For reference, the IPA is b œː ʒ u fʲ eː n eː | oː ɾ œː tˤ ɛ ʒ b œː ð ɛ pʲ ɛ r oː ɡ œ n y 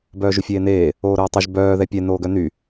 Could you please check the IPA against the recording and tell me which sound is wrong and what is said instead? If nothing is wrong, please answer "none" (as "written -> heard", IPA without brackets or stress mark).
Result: r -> n